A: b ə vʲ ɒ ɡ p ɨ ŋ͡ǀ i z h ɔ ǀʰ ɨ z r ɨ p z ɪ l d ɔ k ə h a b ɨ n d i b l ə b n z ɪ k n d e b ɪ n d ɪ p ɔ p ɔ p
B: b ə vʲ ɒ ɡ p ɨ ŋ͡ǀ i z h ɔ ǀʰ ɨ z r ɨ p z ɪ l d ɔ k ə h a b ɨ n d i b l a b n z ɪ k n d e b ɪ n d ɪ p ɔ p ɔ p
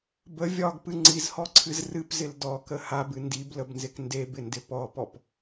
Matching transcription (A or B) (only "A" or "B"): A